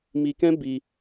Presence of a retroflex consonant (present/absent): absent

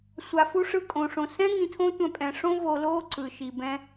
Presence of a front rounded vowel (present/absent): absent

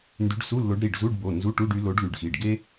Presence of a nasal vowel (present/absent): absent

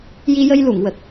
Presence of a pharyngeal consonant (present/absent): absent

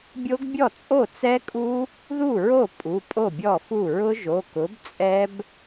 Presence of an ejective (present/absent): present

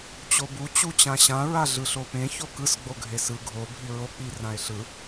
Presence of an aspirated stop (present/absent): absent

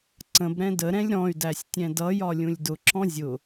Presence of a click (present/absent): present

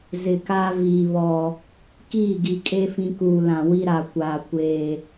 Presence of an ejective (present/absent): present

